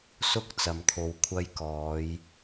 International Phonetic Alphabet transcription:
s ʊ˥ k̚ t͡s ɐ˨ m t̪ʰ o˨ w kʷʰ ɐ˧ j k ɔː˨˧ j

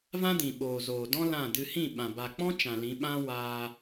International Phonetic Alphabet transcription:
v ã˦ d ĩ˨ ɓ oː˨ z oː˨ d ɔ̃˦ l ã˦˨ d ɨ˧ h ĩ˦˨ ɓ ã˨ b a˨ k͡p ɔ̃˦ t͡ʃ ã˨ l ĩ˨˦ ɓ ã˦ w aː˧

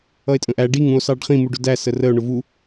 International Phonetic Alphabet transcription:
ʌ e̯ tʼ ə̃ ʔ æ ɖ i ŋ ũ o̯ s ɑ ɖ χ ĩ m u ɖ ʊ d æ s ə r ə o̯ ɳ ʊ v u

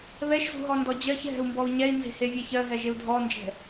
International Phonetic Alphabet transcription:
β ɛ ʃ z ṳ ɦ ɔ n d ɔ d͡ʑ ɜ ç ɦ ɛ̤ u̯ m b ɔ u̯ ɲ ɛ i̯ n z e̤ h e vʲ ɛ ç ɜ ɦ ɛ ʒ e u̯ dʱ ɔ n d͡ʒ ɛ̤

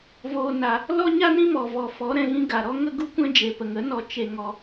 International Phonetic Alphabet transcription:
v oː˧ n a˧ | l ɔ˦ ɲ a˦ n ĩ˦ m ɔ˨ v ɔ˨ f ɔ˨˦ ɾ ɛ̃˧ ɣ ĩ˦ ɡ a˨ ɾ ɔ˦ ŋ ə˦ ɡ u˦ kʷ ɛ̃˦ d͡ʒ e˨ p ə˨ ŋ ə˨˦ n ɔ˧ t͡ʃ e˧ ŋ ɔ˧

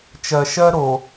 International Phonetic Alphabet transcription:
t͡ʃ ɜ˨ ʃ ɜ˦ ɾ o˨

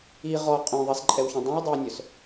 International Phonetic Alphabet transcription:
i ʁ ɔ qʼ œ̃ ðˤ i s ǃʼ ɛ w ç œ̃ dˤ œ̃ w dˤ œ w nʲ œ s

